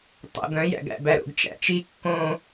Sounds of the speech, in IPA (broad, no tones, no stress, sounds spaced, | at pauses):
tˤ o̰ ɡ œ̃ j æ̰ ɡ æ̰ b æ ɾ o̰ ɡ t͡ʃ æ̰ t͡ʃ i kː õ